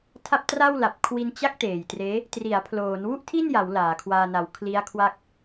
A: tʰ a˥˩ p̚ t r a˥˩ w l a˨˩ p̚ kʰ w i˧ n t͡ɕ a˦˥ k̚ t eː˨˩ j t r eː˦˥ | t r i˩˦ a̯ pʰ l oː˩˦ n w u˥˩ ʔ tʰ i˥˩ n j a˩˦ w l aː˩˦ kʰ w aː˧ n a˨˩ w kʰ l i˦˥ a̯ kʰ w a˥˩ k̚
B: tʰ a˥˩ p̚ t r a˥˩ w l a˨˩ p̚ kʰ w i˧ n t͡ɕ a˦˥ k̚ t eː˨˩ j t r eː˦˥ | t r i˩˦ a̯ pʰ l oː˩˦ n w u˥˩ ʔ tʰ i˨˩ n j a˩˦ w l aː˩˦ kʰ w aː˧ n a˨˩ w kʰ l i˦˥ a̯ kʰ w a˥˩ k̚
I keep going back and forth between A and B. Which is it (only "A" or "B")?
A